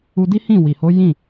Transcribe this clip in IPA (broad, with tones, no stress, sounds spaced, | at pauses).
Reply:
u˧ d i˦ h ĩ˦˨ w i˨ h o˨˦ j ĩ˦˨